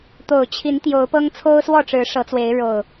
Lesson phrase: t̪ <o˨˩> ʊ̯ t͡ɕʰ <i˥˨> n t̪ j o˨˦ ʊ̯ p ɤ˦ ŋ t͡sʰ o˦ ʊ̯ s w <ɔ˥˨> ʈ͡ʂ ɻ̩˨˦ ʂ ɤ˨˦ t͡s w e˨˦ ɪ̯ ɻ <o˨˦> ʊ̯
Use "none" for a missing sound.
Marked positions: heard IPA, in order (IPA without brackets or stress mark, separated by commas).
o˨˩, i˨˦, ɔ˥˨, o˨˩